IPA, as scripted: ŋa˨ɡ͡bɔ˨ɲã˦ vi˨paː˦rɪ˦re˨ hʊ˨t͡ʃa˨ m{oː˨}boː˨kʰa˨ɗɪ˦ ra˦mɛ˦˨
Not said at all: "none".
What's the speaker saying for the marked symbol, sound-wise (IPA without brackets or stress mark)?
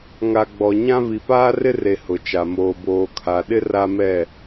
oː˨